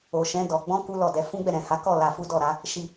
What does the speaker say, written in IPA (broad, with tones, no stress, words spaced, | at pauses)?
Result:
o˨ʃɛ̃˨˦ dɔ˧ ɡ͡bɔ̃˦ku˦ lɔ˦˨dɛ˨˦ fũ˦ɡ͡bɛ˦˨ɾɛ̃˨ha˨˦ kɔ˦˨ la˧ fu˦dɔ˦˨ɾa˨˦ | ʃi˧